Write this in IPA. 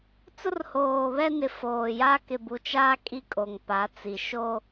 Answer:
t͡s ʊ˦ r h oː˨ β ɛ˦ n ɪ˨ f oː˨ j a˦ k ɪ˨ b u˨ t͡ʃ aː˦ kʼ i˦ kʼ o˨ ŋ p a˨˦ t͡s i˨ ʃ o˦

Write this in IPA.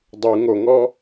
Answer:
dˤ u ŋ o ŋ ɔ

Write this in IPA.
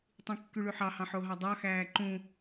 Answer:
tˤ ĩ kː y ɭ y ħ ɑ h ɑ̃ ħ o ɦ ɑ dˤ ɑ x æː ǃ ũ

